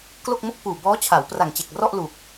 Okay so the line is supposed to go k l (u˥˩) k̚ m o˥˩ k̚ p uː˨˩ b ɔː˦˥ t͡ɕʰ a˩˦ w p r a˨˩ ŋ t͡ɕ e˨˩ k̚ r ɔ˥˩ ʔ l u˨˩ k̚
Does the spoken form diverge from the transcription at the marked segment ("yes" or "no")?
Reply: yes